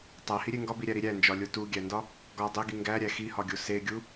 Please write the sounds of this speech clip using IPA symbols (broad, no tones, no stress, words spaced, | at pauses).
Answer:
tˤæhiɾʲe ŋɡɒbiɾʲæɾi ɾʲænd͡ʒɒlʲo tuɡʲændɒ | ɡɒ dˤeɡi ŋɡæɾʲæ xihɒɡʲo seɡʲu